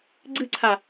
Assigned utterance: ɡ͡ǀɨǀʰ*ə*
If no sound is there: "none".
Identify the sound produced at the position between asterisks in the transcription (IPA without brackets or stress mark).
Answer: a